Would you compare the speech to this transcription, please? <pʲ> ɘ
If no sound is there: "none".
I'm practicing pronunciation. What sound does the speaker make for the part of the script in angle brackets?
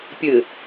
pʲ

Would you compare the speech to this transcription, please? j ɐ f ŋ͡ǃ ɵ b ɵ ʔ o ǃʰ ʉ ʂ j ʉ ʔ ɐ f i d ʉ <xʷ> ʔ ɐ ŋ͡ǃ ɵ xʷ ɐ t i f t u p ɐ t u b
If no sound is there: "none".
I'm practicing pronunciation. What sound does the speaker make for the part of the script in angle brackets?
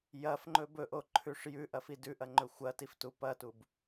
none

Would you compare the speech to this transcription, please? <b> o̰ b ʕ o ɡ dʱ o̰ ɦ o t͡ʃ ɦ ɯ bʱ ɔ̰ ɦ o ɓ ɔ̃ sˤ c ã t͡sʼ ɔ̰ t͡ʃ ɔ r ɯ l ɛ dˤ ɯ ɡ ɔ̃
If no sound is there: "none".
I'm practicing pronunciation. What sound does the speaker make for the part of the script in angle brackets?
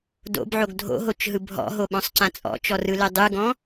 d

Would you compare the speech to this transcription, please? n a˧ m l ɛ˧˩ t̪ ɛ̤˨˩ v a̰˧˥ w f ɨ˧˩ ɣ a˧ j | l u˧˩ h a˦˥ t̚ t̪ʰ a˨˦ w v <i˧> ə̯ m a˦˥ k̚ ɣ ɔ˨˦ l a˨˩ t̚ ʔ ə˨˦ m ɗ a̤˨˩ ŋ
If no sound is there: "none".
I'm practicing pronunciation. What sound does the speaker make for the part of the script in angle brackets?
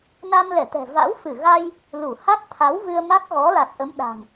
ɨ˧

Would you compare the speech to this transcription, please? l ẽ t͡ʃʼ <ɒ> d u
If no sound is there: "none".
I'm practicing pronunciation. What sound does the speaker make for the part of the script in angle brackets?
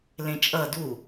ʌ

